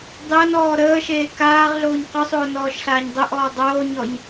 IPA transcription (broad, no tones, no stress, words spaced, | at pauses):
dˤəːnɔː ɾəːʃeː kaːʁɮoːɲ qʊsˤoː nɔːʃɬaːɲdˤʊʔɔː dˤoːɲɔɲ